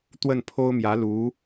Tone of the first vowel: falling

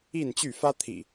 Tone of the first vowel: falling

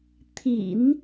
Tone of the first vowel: low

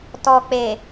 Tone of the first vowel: low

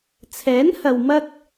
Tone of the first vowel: rising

